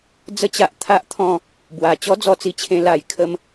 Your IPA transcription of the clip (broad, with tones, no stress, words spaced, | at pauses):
d͡zə˥˧t͡ɕa˦ʔ t̪ʰa˦ʔt̪ʰɔ̃˥˧ | bwa˨˩ t͡ɕɔ˦d͡zɔ˧t͡si˧t͡ɕʰẽ˧ la˨˩j kʰə˦m